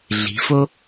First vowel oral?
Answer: yes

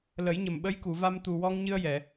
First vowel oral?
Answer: yes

